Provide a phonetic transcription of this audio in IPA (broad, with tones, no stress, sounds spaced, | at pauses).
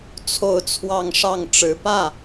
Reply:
t͡sʰ o˥˧ ʊ̯ t͡sʰ w ɑ˥˧ ŋ ʂ ɑ˥˩ ŋ ʈ͡ʂ ɻ̩˧˥ p ä˥˩